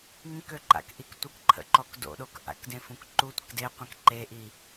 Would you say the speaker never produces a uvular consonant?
no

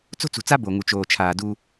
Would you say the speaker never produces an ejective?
yes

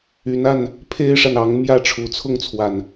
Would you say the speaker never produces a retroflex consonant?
no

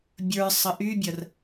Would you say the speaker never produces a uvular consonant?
yes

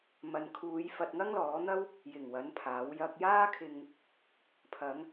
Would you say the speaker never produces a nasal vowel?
yes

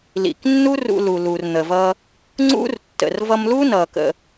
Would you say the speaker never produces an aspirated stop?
yes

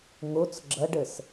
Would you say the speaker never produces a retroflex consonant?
no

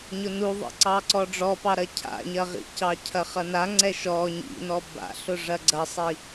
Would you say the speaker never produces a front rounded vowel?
yes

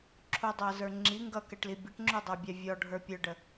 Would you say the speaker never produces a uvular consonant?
yes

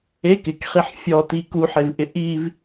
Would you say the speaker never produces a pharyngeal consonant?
no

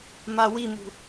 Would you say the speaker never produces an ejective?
yes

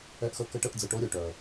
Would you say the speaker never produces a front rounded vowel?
no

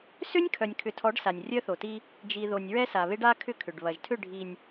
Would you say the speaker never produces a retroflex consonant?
no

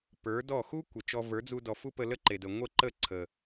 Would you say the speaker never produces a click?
no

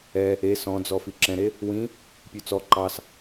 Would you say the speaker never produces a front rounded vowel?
yes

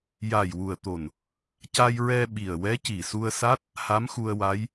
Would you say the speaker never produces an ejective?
yes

